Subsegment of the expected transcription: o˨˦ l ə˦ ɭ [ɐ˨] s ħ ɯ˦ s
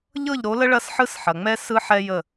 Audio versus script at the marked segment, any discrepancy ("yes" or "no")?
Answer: yes